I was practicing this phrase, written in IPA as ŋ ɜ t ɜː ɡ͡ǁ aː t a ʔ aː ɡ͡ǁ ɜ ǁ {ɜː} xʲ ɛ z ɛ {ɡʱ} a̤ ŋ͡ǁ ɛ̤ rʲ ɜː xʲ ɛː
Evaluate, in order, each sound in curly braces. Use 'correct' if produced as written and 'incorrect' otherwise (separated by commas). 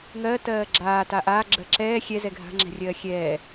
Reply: incorrect, correct